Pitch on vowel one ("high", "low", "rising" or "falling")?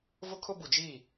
high